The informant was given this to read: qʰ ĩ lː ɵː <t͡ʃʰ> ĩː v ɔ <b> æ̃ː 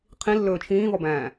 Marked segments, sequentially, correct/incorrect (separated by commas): correct, correct